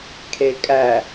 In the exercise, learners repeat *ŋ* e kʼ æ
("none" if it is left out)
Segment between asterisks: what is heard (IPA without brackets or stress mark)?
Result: kʰ